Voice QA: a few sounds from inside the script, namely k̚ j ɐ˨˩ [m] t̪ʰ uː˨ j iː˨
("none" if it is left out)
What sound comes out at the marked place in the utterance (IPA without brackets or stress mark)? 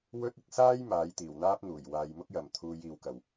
m